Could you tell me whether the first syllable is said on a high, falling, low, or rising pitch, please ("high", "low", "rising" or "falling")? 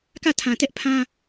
falling